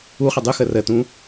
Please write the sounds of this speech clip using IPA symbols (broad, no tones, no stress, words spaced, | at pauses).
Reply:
uχə dˤuxə rətũ